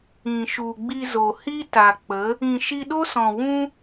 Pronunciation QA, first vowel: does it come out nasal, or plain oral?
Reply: nasal